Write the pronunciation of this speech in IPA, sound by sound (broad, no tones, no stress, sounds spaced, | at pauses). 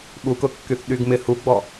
ɓ u k ʊ kː y θ ɗ y ɡ m ɪ h u ɡ͡b ɔ